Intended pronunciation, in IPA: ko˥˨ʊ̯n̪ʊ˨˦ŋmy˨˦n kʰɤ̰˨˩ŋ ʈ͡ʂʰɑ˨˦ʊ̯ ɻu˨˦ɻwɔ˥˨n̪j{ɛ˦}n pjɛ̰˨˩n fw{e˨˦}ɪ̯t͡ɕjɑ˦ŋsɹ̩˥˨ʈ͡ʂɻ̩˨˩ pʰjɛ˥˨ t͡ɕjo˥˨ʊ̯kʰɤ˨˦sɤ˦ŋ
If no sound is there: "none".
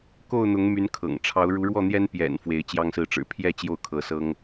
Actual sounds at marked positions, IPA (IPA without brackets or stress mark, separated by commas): ɛ˦, e˨˦